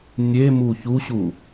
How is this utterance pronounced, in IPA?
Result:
nʲ e m u ç u ɕ u

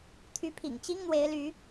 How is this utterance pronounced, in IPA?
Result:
t̪ʰ y˨˦ pʰ ḭ˨˩ ŋ t͡ɕ i˦ ŋ n̪ w e˨˦ ɪ̯ l y˨˦

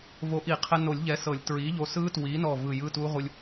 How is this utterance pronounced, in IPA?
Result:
v o˨˥ ʔ i˨˩˦ qʰ ɛ˧ n o˨˩˦ lʲ ʎ ɛ˨˥ s ɤ˨˩˦ lʲ t ɹ i˨˥ ʎ o˧ s ɯ˦˥ t w i˨˥ n ɔ˧˩ v ɯ˧˩ j ɯ˧˥˧ t u˦˥ ʁ u˧ lʲ

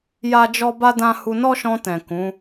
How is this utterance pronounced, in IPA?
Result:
j a˦ d͡ʒ ɔ˦ b a˦ d ã˦ h u˧ n ɔ˦ ʃ ɔ̃˧ t ɛ̃˨ k ũ˨˦

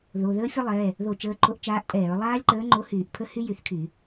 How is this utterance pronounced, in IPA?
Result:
ð o˩˧˩ ð əː˦˥ fʲ ə˦˥ lˠ ɛ˩˧˩ | ð o˧˩˧ t͡ʃ əː˩˧˩ ǃʰ o˨˥ ʔ t͡ʃ aː˨˥ ʔ tʼ ɛː˧˩˧ ɹ lˠ aː˦˥ lʲ ǃ əː˨˥ ŋ͡ǃ o˨˥ h yː˧˩˧ ʔ pʰ ə˦˥ h y˦˥ j y˧˩˧ θ kʰ y˧˩˧

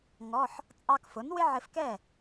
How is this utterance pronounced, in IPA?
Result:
ŋ ɔ˧˥˧ ħ | t͡sʼ ɑ˧ k f ʊ˩˥ n w ɪ˥ ʕ ɪ˧ f k ɛ˥˩

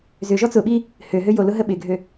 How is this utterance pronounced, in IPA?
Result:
z ʏ ʒ ɔ t͡s ʊ ɓ i | h ø ɦ ø j o l ʊ ɦ ə ɓ ɪ ɡʱ ø

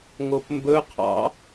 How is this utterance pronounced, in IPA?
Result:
ŋ o p m b ɵ qʰ ɑ̰

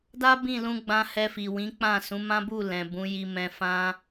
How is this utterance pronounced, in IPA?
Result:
d a˦ b ĩ˦˨ l ũ˧ ɡ͡b ã˧ h ɛ˧ f i˨ w ĩ˨˦ k͡p ã˦˨ s ũ˨˦ m ã˦ b u˦˨ l ɛ̃˨ b ũ˨˦ j i˧ m ɛ̃˧ f ã˦

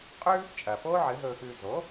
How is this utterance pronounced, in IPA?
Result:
qʼ ʉː˥ | t͡ʃʼ ɐː˩ p o˥ ʕ ɨ˩˥ ɦ ɵː˧ x ʉː˧ z oː˩˥

